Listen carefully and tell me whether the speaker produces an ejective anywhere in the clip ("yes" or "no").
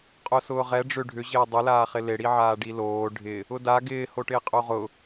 yes